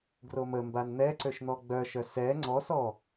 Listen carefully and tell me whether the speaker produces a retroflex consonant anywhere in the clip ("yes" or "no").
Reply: no